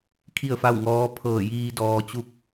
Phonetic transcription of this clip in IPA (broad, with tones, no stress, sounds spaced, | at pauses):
kʰ i˥˨ ə̯ f a˥˨ w ŋ ɔː˧˥ pʰ ɤː˧˩ j iː˧ d ɔː˧ t͡ɕ u˥˨ k̚